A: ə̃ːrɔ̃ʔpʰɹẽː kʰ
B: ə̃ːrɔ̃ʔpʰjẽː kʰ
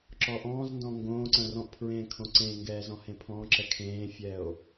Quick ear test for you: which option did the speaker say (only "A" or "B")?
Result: A